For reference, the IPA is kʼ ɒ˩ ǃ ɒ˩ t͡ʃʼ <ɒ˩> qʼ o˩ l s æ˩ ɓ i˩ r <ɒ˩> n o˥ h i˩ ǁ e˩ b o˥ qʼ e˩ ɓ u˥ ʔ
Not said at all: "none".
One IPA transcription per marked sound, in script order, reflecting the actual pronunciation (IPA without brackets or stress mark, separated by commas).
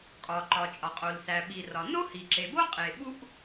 ɒ˩, ɒ˩